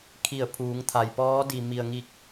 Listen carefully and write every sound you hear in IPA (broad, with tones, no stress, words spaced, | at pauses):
kʰi˧˩ə̯pʰuː˩˧ŋt̪ʰa˩j pɔː˧˥di˩mi˩ə̯ŋi˧˩k̚